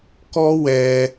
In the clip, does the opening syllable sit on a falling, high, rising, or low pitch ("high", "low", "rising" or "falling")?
high